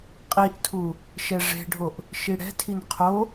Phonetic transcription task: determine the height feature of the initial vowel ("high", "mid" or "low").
high